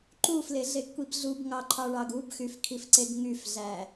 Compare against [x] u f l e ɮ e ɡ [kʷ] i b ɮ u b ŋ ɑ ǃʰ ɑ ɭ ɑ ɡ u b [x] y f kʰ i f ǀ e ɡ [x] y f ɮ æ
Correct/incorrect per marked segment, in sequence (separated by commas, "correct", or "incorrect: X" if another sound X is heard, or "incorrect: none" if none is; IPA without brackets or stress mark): incorrect: ǃ, correct, correct, incorrect: ŋ